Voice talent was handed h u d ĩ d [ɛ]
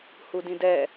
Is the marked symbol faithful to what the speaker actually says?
yes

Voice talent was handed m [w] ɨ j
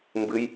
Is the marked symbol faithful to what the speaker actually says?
no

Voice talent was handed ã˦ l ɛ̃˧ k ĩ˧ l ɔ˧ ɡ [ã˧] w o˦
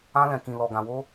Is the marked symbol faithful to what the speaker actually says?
yes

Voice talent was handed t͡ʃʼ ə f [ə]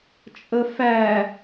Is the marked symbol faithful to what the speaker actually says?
no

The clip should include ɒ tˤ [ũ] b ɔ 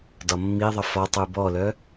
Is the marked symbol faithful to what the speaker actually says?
no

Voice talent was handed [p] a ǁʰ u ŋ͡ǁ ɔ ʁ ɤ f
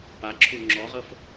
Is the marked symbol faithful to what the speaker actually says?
yes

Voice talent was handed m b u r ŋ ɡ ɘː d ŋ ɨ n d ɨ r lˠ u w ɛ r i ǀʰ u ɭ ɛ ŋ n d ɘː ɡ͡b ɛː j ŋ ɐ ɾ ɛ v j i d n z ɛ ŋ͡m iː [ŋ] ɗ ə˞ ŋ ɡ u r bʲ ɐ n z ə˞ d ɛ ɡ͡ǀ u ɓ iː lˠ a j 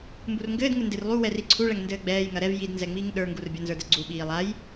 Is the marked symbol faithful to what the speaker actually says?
yes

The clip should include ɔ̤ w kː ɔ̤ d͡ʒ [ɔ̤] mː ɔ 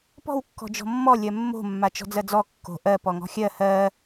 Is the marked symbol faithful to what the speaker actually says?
yes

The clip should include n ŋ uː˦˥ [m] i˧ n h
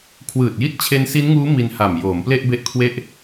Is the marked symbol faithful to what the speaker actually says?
yes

